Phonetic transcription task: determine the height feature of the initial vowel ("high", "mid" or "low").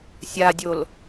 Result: low